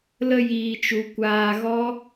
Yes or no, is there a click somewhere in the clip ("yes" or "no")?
no